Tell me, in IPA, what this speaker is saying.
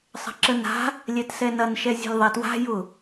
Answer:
sˤə̤ǁəna̤ | lʲɛtsɛnɐnʃɛ zʲɛ̤lʲðˤatwa̤ jʊ

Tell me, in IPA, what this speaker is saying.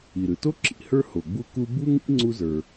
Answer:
i˩ɾɯ˩to˥ ǁḭ˩hə˞˥ ho˩ɡ͡bu˥ku˥ bu˥ŋḭ˥ ŋ͡ǀu˥zə˞˩

